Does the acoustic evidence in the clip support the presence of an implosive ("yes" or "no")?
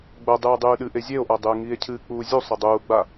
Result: yes